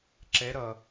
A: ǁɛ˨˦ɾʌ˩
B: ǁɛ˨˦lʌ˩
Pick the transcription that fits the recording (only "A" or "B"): A